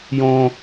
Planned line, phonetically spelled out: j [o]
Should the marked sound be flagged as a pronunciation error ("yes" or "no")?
yes